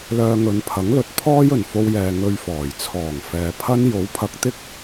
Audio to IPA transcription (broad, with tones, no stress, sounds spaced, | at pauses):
l œː˧ ŋ ɵ˨˧ n pʰ ɐ˨˥ ŋ l ɵ˨˥ t̚ pʰ ɔː˥ j ɵ˨˩ n f o˧ w j ɛː˨ ŋ ɵ˧ ɥ f ɔː˨˩ j t͡sʰ ɔː˨˩ ŋ f ɛː˨ pʰ ɐ˥ n j o˨˥ w pʰ ɐ˧ k̚ t̪ ɪ˥ k̚